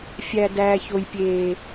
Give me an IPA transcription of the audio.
fʲæ˨ dæː˨ço˨jpʲeː˨

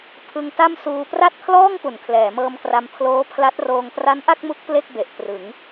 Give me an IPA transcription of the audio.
pʰɯ˧ŋta˥˩msuː˧ pra˥˩t̚kʰlɔː˥˩ŋpu˩˦n kʰlɛː˩˦mɤː˧mkra˧m pʰloː˦˥pʰla˦˥t̚roː˧ŋ tra˦˥nʔa˥˩k̚mu˦˥k̚ ple˥˩k̚be˨˩ʔ trɯ˩˦ŋ

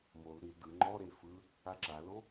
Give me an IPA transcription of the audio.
mol ɾil dɯ ŋ͡ǃɔɾe fɯ | aǁalo

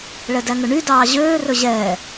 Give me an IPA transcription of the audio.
ɭɛdæŋɵɳy dɑːʑøː rɵʑɛː

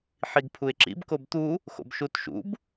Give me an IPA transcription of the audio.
ħiɡpʰuɪ̯ǁḭb kobt̪u | xo̰bʃutʃṵb

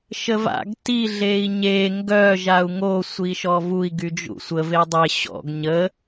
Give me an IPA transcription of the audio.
ʃəva̰ɡ ti ɮei̯ɲe ŋɡœ ʒau̯ŋo sʷiʃɔvui̯ ɡyd͡ʒṵsʷə vedˤe ɕɔ̰ɡ ɲə

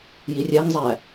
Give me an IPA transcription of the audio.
jirʲæŋzˤæ

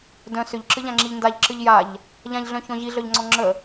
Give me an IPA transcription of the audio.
dœ̃ sʏʎǁɨʎãŋ͡ǁiʎ ndaʎǁɨʎ jaʎ | ʎãʎɮœ̃çɔ̃ ʑiɮœʎŋ͡ǀɔ̃ ŋ͡ǁə

